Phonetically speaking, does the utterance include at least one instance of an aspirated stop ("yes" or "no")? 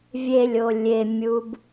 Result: no